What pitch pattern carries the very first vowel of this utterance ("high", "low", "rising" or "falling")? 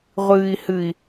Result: low